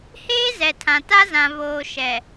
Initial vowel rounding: unrounded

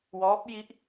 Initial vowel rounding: rounded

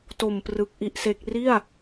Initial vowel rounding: rounded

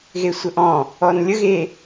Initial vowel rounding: unrounded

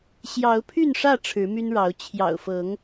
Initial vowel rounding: unrounded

